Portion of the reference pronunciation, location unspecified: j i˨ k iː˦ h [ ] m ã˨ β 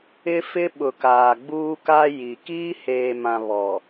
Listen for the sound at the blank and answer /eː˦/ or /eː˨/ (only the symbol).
eː˨